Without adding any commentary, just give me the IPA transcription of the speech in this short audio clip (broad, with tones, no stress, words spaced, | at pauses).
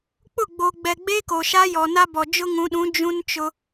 k͡pʊ˦˨ɡ͡bo˨ ɡ͡bɛ˨ɡ͡be˦ko˨ ʃa˦ jɔ˨na˦bɔ˨ d͡ʒʊ˦ŋũ˨˦ɗũ˨˦ d͡ʒũ˦nt͡ʃʊ˦